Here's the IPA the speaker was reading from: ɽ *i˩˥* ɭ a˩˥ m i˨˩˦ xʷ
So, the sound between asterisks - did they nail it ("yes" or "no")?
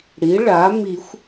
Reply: yes